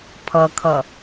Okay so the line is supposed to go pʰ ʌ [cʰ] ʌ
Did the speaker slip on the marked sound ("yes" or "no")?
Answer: yes